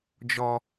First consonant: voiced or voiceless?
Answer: voiced